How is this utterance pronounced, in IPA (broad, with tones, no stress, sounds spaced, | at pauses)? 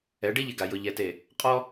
ɛ˨˦ ɖ i˦ ʎ ɪ˨ ɡ a˨ j ʊ˨ ʎ ɛ˨ t e˨ | qʼ ɔ˦